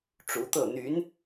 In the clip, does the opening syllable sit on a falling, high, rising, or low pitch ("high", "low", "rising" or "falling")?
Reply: rising